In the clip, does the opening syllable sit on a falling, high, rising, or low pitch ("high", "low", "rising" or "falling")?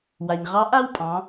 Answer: low